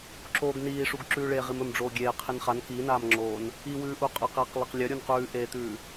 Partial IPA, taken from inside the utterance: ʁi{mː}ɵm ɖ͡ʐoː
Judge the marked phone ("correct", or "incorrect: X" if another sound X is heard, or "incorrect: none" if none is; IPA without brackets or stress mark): incorrect: m